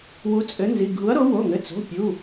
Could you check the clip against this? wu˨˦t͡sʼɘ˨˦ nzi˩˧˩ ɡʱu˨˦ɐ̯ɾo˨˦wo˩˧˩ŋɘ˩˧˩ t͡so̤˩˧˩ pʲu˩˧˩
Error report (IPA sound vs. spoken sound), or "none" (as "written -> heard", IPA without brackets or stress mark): none